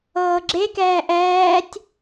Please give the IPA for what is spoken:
ɤː ɡ͡ǁ e k ɛː ʔ ɛː tʲ

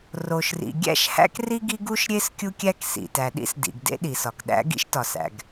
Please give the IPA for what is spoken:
r o˩ ʃ r ḭ˩ ɡʲ æ̰˥ ʃ h æ̰˥ k r i˥ ɡ i˥ ɡ u˥ ʃ ɾʲ e˥ s kʲ u˥ kʲ æ˥ k s ḭ˩ t æ˩ ɗ ḭ˥ s d ḭ˩ ɡ d ḛ˥ ɗ i˩ s ɒ˩ k ɗ æ̰˥ ɡ ḭ˥ ʃ t ɒ˩ s æ̰˩ ɡ

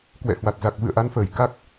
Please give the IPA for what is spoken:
k w ɛ̰˧˨ h w a˨˩ t̚ z a˨˩ k̚ v ɨ̰˧˨ ə̯ ʔ a˨˦ n f əː˧˩ j k a˦˥ k̚

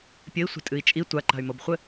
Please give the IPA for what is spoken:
pʲ ɘ i̯ sʷ e̤ tʼ ɨ i̯ t͡ʃʼ i tʷ a ǃ a̤ y̯ m o b χʷ ɘ

